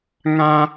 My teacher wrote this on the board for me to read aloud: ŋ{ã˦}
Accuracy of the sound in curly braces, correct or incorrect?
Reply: correct